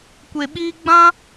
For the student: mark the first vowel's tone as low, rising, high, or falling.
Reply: low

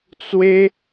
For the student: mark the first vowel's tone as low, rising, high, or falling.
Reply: high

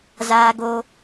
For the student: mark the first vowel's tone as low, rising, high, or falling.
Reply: high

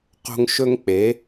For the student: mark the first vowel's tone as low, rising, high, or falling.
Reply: high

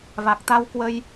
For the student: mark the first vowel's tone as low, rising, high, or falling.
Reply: low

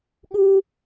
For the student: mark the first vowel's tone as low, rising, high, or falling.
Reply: high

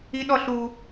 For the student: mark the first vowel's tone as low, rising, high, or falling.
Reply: high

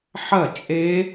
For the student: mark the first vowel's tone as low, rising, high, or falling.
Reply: falling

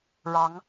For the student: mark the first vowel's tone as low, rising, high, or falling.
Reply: rising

